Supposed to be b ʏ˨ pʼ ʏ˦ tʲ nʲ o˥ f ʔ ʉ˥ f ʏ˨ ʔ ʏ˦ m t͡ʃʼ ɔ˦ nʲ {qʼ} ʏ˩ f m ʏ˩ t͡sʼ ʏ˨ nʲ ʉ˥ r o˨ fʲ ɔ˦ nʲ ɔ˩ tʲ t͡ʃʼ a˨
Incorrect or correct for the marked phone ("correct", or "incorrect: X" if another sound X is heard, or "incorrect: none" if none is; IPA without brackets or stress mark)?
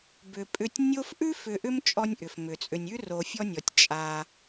incorrect: ʔ